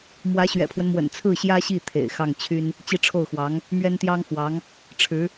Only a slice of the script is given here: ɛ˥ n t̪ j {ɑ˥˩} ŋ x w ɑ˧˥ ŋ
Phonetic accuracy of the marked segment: incorrect: ɑ˥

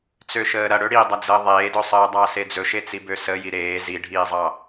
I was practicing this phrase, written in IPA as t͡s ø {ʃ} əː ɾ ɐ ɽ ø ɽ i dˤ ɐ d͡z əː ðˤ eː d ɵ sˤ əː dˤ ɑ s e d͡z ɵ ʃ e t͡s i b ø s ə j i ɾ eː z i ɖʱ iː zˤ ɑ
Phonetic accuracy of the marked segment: correct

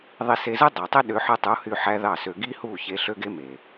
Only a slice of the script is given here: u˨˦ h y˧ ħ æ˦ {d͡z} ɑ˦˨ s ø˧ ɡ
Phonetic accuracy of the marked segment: incorrect: ð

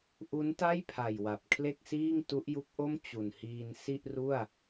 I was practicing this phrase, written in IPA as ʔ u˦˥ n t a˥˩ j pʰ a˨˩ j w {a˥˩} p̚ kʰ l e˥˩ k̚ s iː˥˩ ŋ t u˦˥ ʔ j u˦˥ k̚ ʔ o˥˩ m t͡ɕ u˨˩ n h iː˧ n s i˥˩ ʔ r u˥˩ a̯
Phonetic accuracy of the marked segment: incorrect: a˨˩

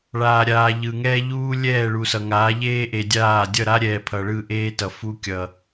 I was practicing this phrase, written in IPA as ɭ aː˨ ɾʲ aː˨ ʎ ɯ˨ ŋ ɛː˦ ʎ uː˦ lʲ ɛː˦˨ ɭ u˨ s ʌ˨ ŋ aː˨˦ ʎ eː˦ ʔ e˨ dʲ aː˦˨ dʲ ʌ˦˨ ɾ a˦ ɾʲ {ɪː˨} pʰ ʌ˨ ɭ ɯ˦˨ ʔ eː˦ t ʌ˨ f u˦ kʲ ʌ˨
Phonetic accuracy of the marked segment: incorrect: ɛː˨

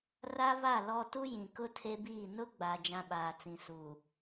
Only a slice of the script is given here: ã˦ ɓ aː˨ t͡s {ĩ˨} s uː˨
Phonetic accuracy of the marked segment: correct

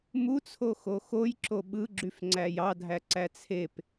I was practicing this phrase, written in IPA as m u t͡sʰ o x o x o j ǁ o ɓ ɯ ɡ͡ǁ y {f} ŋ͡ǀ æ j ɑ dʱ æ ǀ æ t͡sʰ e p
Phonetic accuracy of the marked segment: correct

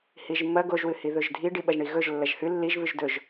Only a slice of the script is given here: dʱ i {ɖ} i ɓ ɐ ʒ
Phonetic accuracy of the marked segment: correct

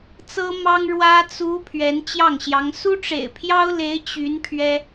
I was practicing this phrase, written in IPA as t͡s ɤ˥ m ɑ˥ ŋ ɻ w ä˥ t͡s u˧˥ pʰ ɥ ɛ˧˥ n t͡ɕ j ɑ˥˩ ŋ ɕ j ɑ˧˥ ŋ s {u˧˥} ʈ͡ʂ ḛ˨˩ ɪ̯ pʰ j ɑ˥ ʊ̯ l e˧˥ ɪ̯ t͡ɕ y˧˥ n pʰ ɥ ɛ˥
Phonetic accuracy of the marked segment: incorrect: u˥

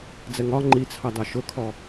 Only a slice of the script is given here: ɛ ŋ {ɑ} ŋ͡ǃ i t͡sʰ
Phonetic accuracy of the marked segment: incorrect: ɒ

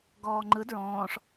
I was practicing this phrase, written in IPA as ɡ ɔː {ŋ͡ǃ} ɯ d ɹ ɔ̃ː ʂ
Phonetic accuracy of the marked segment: correct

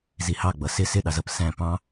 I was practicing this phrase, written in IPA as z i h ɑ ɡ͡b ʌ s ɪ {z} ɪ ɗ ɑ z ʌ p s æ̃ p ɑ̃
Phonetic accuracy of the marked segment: incorrect: s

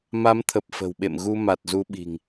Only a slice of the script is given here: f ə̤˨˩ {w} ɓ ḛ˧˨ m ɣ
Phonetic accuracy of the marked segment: correct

